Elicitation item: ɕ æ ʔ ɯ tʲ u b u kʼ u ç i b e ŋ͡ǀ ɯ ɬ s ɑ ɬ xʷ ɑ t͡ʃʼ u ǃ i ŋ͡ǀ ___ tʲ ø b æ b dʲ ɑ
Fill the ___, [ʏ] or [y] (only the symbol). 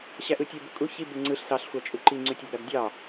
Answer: y